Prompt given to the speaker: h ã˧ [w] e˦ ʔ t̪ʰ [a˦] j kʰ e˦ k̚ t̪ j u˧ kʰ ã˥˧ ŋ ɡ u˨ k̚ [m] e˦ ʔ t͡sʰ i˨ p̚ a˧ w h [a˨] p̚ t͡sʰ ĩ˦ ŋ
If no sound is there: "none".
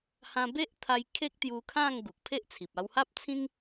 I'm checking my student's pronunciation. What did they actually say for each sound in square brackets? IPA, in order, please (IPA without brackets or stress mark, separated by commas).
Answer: b, a˧, pʰ, a˦